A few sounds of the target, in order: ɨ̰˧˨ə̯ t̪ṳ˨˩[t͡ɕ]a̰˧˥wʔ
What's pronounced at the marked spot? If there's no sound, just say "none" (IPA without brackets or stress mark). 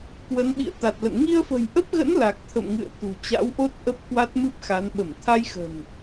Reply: t͡ɕ